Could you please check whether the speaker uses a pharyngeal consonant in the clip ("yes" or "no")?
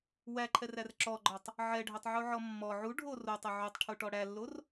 yes